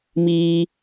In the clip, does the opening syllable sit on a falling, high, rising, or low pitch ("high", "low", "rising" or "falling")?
low